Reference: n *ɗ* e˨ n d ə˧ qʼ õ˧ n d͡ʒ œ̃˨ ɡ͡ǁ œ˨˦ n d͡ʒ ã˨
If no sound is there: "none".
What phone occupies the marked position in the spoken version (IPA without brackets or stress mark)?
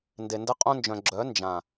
d